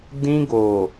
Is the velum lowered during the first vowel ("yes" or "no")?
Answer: yes